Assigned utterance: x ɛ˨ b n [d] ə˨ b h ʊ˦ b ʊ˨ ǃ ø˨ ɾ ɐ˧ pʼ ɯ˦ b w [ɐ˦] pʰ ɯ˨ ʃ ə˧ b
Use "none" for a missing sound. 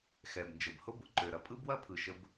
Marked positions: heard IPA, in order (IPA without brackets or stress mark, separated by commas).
d͡ʒ, ɐ˦